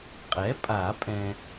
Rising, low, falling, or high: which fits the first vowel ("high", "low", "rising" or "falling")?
rising